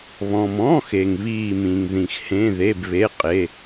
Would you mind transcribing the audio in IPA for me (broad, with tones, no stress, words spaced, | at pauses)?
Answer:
βɔ̃˨mɔ̃˧˥˧xe˨ŋ βiː˦˨mĩ˨ŋ ðĩ˨xhẽ˧˥˧ðe˧˥˧b βe˧˥˧ qʼe˧˥˧